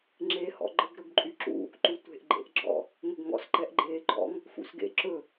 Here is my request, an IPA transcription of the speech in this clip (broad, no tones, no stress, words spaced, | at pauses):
ŋ͡ǁe hɔ̰ɡ͡ǃəɡ ɾɵɡǃʼyǁṵ | ǃutʷe̤ʔ ɡ͡ǃḛʔɡ͡ǁɔ̰ | ŋɵɡŋɔ̰s ǃɛʔɡ͡ǃeːɡ͡ǃɔ̰ŋ | fṵsɡḛ ǁɵ